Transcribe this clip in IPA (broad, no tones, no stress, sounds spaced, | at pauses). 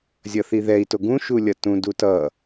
zʲ ʌ θ i ð ɛ i̯ t o ɡ ũ ʃ u lʲ ʌ t ũ d u t ʌ